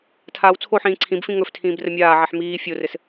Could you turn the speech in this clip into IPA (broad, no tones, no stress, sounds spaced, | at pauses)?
tʰ aː w t͡sʰ o ħ ĩː ǀʰ ĩ b f ĩ ŋ ɵ f tʰ ĩː b r ə mʲ aː ʕ ɛ ħ m iː fʲ o r ɘ s